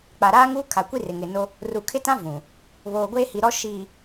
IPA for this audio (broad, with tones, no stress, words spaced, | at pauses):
k͡pa˨ɾaː˦ŋuː˦ kʰa˨kʷi˦rɪ˨ ŋɪ˨no˦ | ru˨kʰɪ˦tã˦ vũ˨ | βoː˨ɡʷeː˦hi˨ɾɔ˦ ʃiː˨